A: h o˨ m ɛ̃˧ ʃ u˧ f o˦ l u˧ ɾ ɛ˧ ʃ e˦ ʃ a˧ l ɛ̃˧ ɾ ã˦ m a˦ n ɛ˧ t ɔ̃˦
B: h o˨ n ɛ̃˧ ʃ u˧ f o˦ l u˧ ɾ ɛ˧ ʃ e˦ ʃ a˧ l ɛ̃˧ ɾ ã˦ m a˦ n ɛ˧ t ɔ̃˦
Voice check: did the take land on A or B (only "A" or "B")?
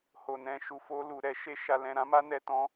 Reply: B